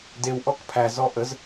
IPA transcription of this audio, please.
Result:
d e w ʔ ɔ k pʰ æ z ɔ ʔ ə z

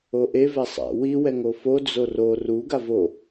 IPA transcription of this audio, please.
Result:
o ʔ e v ɛ sˤ a̰ w i w ɛ ŋ o f o d͡z o r o r u ɡ a v o

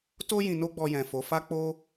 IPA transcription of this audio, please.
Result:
t o˦ j ĩ˧ n o˦ ɡ͡b ɔ˧ j ɛ̃˨ f o˨˦ f a˦ k͡p o˦

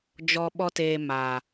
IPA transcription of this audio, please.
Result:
d͡ʒ ɔ˨ ɓ ɔ˦ t eː˧ m a˨

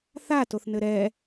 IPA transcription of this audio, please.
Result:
θ a t o θ n ɘ ɾ ɛ

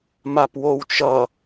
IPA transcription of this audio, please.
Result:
m a p w o w t͡ʃ ʌ

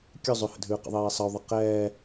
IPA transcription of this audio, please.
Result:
kʲ ʉ zˤ ʉ h ə̰ dʱ ʉː q ə̰ ðˤ eː sˤ ə u̯ ðˤ ə q ɛː

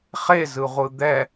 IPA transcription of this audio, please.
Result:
χ e z ɯ ʁʷ ɯ d̪ ɛ

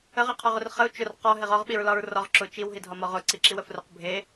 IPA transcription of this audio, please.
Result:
ə ʁ i qʰ ɒ ʁ ʊ r χ ə u̯ t͡ʃ ʊ r q ɒ ɦ e ʁ ɒ ʁ ɓ i ɹ l ɒ ɹ r ɒ ʁ ǁ ʊ t͡ʃ i w ɦ i dʱ ɒ m ɒ ʁ ʊ ǀ i ǁ i w ə f r ʊ q bʱ e

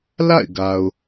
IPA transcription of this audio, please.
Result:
l a̰˦˨ ɪ̯ ɡ a˨ ʊ̯

